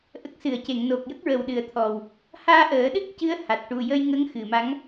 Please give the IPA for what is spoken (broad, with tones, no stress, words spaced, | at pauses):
ʔə˨˩k̚ sɨ˨˩˨ə̯ce˨˩˨ŋ no˨˩k̚ jə˦˥k̚ɹə˨˩wɗɨ˨˩ə̯t̪ʰɔ˨˩w | haː˧ʔəː˨˩˦ɗɨ˦˥k̚cɨ˧˥ə̯ ha˨˩t̚ʈu˨˩ jə˧jŋə˧˥ŋ xɨ˨˩˨ma˧˥ŋ